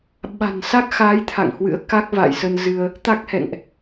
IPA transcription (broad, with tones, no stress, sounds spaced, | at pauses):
ɓ a̤˨˩ n s a˦˥ k̚ x a˨˦ j t̪ʰ a̰˧˨ ŋ h w ɨ̰˧˥ ə̯ k a˦˥ k̚ v a̰˧˨ j s ə˧ n z ɨ˧ ə̯ | t̪ a˦˥ k̚ h ɛ̰˧˨ ŋ ʔ